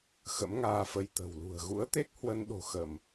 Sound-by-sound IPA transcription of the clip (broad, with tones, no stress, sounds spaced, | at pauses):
x ə̰˧˥ m ŋ aː˧ f ə˧ j t̪ ə̤˨˩ w l ṳ˨˩ ə̯ ɣ ṵ˧˥ ə̯ t̪ e˦˥ k̚ h w ə˧ n ɗ o̤˨˩ x ə˧˩˨ m